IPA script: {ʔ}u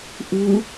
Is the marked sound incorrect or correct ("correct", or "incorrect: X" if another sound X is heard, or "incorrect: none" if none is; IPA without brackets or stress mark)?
correct